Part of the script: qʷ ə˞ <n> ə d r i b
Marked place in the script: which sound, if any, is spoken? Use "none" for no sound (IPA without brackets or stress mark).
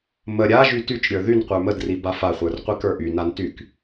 m